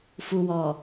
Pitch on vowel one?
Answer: low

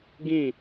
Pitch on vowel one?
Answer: falling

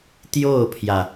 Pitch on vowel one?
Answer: falling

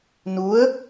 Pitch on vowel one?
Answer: rising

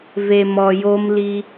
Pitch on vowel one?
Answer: low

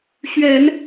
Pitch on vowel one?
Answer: low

